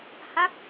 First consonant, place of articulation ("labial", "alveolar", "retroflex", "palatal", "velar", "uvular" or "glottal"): glottal